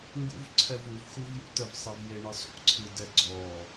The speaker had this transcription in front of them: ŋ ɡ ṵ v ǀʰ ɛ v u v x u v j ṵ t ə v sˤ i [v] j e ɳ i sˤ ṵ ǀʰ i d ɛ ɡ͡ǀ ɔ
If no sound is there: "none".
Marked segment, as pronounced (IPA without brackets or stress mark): v